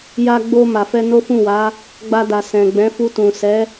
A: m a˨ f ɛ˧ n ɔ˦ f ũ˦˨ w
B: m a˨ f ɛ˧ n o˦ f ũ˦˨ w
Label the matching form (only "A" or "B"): B